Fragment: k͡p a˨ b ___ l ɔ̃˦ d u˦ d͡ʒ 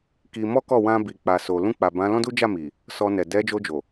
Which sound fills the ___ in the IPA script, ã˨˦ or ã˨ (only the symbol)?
ã˨˦